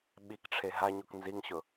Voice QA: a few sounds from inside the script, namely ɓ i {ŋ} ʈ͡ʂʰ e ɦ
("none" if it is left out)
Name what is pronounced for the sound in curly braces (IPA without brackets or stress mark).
k